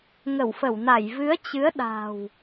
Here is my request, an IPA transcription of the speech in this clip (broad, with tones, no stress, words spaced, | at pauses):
ŋə˧˩wfə˧˩wna˧˩j vɨ˨˦ə̯t͡ɕɨ˨˦ə̯ ɗa̤˨˩w